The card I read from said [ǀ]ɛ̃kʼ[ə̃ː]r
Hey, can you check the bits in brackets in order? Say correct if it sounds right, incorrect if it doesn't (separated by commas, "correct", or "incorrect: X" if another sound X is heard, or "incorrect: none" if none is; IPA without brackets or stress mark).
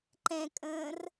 incorrect: ǃ, correct